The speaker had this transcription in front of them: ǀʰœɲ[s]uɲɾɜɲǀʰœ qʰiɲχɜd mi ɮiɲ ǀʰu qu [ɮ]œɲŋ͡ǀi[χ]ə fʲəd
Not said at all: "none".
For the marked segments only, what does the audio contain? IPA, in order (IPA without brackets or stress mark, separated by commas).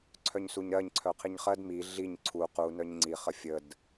s, n, χ